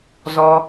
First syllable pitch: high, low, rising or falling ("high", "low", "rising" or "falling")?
high